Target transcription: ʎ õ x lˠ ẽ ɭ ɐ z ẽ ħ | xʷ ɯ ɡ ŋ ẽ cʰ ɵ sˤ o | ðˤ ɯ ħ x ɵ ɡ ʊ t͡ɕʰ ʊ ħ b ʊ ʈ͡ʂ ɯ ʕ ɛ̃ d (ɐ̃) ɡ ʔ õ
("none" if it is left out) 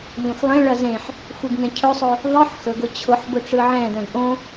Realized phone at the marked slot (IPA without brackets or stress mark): ɐ̃